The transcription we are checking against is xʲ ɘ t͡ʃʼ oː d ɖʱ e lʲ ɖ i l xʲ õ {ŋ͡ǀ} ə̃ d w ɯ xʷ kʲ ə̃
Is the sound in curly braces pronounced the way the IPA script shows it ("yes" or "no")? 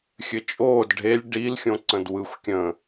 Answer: no